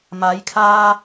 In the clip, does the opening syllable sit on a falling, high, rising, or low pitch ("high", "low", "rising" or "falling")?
rising